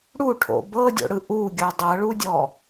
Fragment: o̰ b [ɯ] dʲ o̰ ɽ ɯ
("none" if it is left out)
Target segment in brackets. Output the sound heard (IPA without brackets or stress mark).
ɤ